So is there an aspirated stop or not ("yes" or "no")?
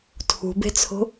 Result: yes